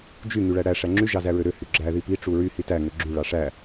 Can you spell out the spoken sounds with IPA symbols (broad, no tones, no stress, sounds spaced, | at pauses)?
d͡ʒ y ŋ y ɭ æ ɽ æ ʂ æ ŋ͡ǁ y ʒ ɑ z æ ɹ ø ɾ ø h y ɡ͡ǁ æ ð i p i ʈ͡ʂ u ɹ y h i t æ ŋ ø ɡ͡ǁ y ɭ ɑ ʂ æ